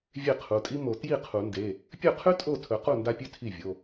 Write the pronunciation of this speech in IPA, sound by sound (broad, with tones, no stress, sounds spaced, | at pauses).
vʲ e˥˩ qʰ u˩˧˩ tʼ i˥ m o˨˩˦ t j i˥˩ qʰ u˨˩˦ n d e˩˧˩ | pʲ ɵ˥˩ qʰ ʉ˥ tʼ o˥˩ tʰ ɵ˨˩˦ q u˥˩ n d a˥ pʲ ʉ˥ tʰ i˥˩ vʲ o˩˧˩